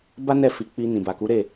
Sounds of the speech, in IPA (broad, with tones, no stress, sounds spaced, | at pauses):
b a˦ n ɛ˦˨ f i˨˦ k͡p i˧ n ĩ˨ b a˨ k u˨˦ ɾ e˦˨